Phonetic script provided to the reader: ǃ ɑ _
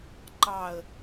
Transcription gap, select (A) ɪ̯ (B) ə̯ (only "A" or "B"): B